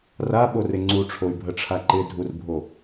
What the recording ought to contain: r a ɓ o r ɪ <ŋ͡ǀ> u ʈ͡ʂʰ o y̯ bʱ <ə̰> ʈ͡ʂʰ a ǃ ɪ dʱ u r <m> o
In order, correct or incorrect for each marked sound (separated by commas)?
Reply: correct, incorrect, incorrect